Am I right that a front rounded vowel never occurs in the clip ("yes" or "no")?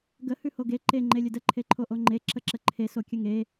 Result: yes